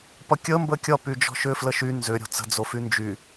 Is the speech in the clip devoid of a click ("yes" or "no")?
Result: yes